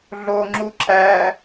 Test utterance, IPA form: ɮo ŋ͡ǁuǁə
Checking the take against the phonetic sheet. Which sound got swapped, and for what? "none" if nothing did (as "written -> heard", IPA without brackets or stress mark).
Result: ə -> æ